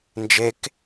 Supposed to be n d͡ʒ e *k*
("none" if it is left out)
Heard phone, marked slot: k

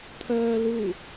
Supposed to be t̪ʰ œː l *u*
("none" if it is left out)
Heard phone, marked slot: u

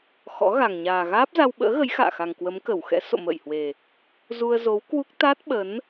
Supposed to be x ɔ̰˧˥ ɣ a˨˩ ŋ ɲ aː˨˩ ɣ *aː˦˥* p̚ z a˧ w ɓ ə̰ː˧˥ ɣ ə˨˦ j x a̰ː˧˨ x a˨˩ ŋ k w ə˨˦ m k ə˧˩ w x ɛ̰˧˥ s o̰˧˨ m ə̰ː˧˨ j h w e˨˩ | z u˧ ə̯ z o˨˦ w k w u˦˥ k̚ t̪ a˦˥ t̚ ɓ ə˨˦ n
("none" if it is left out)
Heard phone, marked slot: aː˦˥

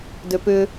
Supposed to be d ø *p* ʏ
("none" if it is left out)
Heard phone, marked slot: p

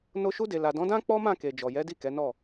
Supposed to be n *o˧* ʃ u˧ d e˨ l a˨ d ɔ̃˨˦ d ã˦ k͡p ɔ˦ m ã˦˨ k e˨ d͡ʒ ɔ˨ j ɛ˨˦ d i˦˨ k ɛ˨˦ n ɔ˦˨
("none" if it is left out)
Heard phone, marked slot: o˧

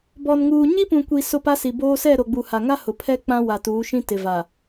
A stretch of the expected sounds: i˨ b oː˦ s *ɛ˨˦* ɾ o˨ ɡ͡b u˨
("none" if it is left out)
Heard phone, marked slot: ɛ˦˨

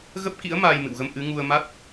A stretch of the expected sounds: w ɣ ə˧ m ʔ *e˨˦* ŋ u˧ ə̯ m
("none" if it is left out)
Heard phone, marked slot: ɨ˨˦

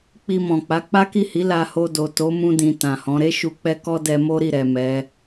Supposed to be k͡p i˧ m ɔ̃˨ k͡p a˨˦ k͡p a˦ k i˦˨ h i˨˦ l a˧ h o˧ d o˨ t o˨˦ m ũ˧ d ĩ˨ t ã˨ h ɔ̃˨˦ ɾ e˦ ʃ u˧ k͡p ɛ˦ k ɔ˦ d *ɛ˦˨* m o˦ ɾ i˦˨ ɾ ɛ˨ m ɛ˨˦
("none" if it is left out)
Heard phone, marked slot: ɛ˧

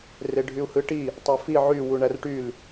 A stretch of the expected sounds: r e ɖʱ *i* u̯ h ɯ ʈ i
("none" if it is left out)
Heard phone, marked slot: y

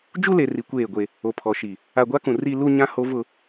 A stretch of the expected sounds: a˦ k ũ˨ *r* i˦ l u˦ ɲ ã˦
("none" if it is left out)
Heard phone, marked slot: r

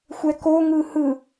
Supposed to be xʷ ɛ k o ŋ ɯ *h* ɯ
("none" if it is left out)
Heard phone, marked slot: h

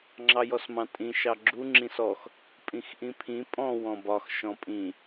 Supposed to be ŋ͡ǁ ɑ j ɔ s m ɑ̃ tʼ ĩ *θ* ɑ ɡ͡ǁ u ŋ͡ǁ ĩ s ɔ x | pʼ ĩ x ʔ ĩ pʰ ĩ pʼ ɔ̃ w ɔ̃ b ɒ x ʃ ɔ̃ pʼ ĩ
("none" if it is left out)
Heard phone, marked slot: ʃ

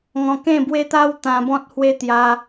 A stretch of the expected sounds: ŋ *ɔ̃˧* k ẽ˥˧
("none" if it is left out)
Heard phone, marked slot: ɔ̃˧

